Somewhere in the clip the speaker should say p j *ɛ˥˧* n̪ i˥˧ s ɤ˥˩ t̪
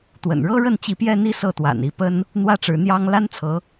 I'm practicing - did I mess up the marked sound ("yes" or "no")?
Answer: no